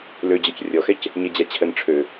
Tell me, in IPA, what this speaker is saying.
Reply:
l ø d͡ʑ ɔ c rʲ ɔ x ɛ c | ɲ ɛ d͡ʑ a t͡ɕʰ ə n ʈ͡ʂʰ ø

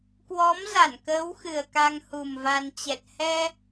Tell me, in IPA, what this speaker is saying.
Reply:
k w ɔ˨˦ m z a˧˩ n k əː˨˦ w x ɨ˨˩ ə̯ k a˧ ŋ h u˨˩ m v a˧ n t͡ɕ ɛ˨˩ t̚ h ɛ˧

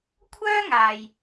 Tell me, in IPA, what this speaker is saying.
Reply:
kʷʰ œː˥ ŋ aː˨ j

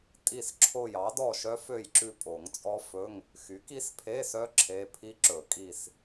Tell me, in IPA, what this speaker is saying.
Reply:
tʼ i˦˨ s ǁʰ o˦˨ j ɑ˩˥ d ɔ˦˨ ʃ œ˦˥ f ø˦˨ j ǁ ʉ˦˨ pʼ o˨˩˦ ŋ t͡sʼ ɔ˦˥ f ɵ˧˥˧ ŋ | x y˩˥ k i˦˥ s pʰ e˧˥˧ s œ˦˥ ǁʰ e˧˥˧ pʰ i˦˥ ǁ ɵ˨˩˦ kʼ i˦˨ s

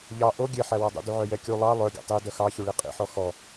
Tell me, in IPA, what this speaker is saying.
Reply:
ʎ ɑ ʔ o ɡʲ e ħ æ w ɔ dˤ ṵ d u ʕ œ j ɛ kʲ u lˠ ɑ lˠ œ ɡʲ ɔ̰ tˤ i d œ x ɑ ç u ɭ i qʼ ḭ ħ ɔ x ɔ

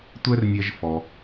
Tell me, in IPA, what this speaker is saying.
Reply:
tʷ ɛ˥ r nʲ ɛ˧ ʒ f ɔ˩

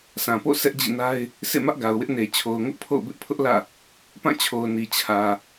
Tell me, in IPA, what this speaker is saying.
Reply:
sʰ ã˨ p o̰˦˨ s ɛ˦ ʔ d͡ʑ ḭ˦˨ n a˦ ɪ̯ | sʰ ḛ˦˨ m ä˦ ʔ ɡ a˨ ʊ̯ w ɪ˦ ʔ n e˨ t͡ɕʰ o˨ ʊ̯ ŋ ʊ˦ ʔ pʰ o̰˦˨ ʊ̯ b ɪ˦ ʔ pʰ ʊ˦ ʔ l ä̰˦˨ | p ã˦˨ t͡ɕʰ o˨ ʊ̯ n i˨ t͡ɕʰ ä˨

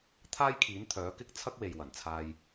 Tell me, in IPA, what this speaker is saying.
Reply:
t̪ʰ aː˥ j kʰ iː˨˥ n t̪ʰ œː˨˥ k ɪ˥ k̚ t͡sʰ ɐ˥ k̚ w e˨ j w ɐ˨˩ n t͡sʰ aː˧ j

